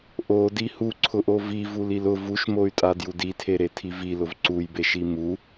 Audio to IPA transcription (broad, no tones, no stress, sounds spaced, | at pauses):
ʔ o d i h u ǀʰ ʊ ʔ o v i v u l i l ʊ v u ʃ m o y̯ tʼ a d j u d i tʰ e ɾ e tʰ i v i l ʊ v ǀ u j b e ʃ i m u